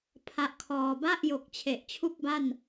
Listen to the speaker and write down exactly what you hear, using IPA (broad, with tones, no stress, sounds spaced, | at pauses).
pʰ a˦˥ ʔ kʰ ɔː˧ b a˥˩ ʔ j o˨˩ k̚ t͡ɕʰ e˨˩ ʔ t͡ɕʰ u˥˩ k̚ b a˥˩ n